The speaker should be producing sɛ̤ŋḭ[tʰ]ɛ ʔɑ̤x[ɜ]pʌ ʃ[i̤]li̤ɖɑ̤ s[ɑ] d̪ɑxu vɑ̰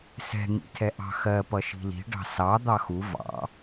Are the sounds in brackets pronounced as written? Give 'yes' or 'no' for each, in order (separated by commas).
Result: yes, yes, yes, yes